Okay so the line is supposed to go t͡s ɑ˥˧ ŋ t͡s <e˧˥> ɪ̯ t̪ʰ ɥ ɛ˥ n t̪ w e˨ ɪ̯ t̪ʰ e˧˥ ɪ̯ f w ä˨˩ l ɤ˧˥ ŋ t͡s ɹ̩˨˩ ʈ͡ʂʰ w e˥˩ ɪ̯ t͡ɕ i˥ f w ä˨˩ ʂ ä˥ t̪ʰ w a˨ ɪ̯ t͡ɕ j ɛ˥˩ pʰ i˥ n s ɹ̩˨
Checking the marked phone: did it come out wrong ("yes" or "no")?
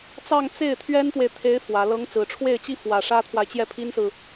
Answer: yes